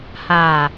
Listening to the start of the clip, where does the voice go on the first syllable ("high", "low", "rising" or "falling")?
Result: low